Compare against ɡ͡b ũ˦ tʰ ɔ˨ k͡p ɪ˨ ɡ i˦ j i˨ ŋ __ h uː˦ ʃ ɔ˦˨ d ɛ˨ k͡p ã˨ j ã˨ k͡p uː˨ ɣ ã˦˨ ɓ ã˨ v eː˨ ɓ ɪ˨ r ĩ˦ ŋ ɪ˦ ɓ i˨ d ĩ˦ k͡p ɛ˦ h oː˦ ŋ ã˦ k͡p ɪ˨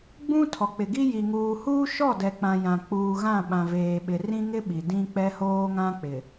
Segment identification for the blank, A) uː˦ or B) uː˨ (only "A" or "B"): B